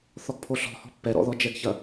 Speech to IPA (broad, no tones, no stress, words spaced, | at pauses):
θɔɡpʰoɬɔ̤ hɔ̤pːɛ ɾɔ̰ðɔd͡ʒɛɡçɐ